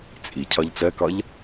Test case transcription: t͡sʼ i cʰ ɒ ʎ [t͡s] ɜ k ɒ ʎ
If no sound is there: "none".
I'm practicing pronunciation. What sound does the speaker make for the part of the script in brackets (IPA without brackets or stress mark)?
t͡s